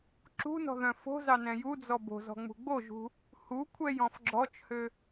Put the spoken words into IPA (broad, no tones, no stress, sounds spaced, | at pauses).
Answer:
ǁ ṳ n ɔ̤ ð œ̃ f o̤ z ɑ n ɛ̃ j u d͡z ɔ b o̤ z ɔ̤ ŋ͡m ṳ ɡ͡b o ʒ ṳ | h u kʷʰ ɛ j ɔ̃ f ɡ͡ǁ ɔ t͡ʃ h ø